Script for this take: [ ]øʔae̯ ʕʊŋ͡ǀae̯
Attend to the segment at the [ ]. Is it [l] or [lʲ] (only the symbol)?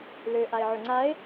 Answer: l